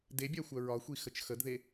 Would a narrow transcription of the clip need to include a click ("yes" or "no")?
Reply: no